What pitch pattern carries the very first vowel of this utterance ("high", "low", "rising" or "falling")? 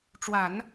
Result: low